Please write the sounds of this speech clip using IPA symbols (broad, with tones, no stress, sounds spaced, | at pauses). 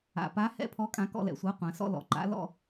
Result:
a̰˨˩ p a˨˥ h ɛ̰˧˥˧ pʰ ɔ˨˥ kʼ ã˨˥ k ɔ̰˧˥˧ l ɛ̰˨˩ sʷ a˨˥ qʷ ã˩˧ s ɔ̰˥˨ l ɔ̰˨˩ ǃ a̰˨˥ l ɔ̰˥˨